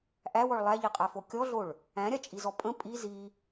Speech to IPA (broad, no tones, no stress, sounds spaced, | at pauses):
ʔ æ w ɔ ɭ lˠ æ ʎ i qʼ æ f o kʲ ɔ ɮ o ɭ | æ̃ ɾʲ a t͡ʃʼ i z ɔ pʼ ə̃ pʼ i z i